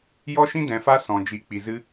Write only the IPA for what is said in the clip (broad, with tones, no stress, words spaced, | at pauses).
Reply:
jɔ˦ʃĩ˦ dɛ̃˨fa˧ sɔ̃˨d͡ʒi˨˦k͡pi˨zɨ˦